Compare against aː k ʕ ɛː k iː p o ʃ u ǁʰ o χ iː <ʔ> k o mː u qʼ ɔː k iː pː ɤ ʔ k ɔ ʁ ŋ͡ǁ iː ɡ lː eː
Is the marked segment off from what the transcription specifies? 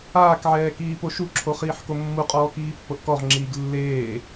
yes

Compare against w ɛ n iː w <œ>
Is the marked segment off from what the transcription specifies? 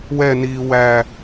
yes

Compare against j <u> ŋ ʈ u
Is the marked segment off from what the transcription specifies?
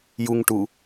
no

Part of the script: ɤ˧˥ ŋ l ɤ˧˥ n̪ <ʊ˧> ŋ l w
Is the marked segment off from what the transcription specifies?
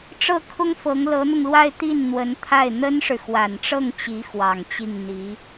no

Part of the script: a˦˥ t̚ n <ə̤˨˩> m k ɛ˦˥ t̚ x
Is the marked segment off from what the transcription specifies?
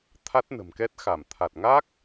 no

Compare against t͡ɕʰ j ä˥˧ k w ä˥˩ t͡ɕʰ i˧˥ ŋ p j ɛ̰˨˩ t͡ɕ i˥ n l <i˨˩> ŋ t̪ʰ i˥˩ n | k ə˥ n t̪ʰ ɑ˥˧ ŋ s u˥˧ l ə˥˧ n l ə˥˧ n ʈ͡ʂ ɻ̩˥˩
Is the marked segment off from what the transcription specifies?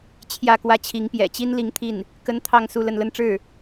yes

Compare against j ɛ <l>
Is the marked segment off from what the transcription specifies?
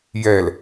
no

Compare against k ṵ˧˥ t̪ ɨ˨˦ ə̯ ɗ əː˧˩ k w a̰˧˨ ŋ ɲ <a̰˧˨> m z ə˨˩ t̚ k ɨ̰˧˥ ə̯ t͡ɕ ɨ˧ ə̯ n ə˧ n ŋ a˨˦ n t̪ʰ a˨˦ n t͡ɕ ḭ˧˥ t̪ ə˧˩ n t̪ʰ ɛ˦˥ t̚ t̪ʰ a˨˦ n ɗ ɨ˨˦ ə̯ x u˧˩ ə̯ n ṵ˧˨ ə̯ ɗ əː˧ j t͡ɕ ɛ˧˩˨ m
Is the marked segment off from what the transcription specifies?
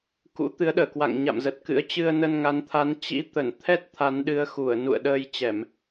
no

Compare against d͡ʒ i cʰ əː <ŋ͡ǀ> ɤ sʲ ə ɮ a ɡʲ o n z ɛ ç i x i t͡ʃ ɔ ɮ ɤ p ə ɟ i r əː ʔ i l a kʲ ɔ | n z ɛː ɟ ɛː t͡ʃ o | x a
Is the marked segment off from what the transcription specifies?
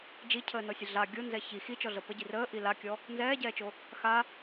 yes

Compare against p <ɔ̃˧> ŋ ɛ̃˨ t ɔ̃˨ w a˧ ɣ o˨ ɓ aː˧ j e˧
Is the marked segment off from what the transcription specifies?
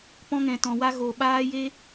no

